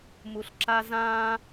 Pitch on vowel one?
low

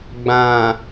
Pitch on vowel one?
low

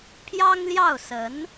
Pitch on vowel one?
high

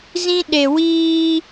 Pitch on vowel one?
high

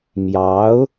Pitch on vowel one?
rising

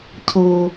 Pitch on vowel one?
low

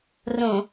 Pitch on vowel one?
low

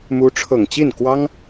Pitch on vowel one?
rising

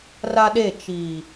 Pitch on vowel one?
high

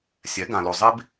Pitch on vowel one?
rising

